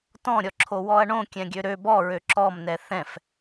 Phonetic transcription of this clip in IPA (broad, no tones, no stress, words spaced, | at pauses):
tɔ̃ɾʲɔǁʰo wɔɐ̯ɳõ kʲɛ̃ɡʲøɾø bɔɹø ǁɔmnɛ θɛ̃f